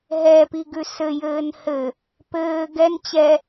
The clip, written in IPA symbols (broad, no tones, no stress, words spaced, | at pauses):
ɦɛpiɡʉ sɘjɘːn hɘ | pɘː ɡɛn t͡ɕɛ